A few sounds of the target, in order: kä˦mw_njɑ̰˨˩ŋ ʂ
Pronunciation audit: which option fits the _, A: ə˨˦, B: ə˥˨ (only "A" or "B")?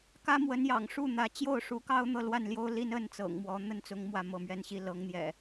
A